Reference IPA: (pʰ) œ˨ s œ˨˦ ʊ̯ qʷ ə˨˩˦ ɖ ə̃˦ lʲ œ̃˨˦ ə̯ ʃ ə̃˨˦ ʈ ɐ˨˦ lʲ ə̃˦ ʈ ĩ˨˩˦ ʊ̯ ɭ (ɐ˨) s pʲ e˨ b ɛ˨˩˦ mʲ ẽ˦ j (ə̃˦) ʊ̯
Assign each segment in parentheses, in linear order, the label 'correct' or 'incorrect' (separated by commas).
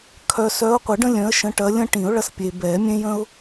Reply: incorrect, incorrect, correct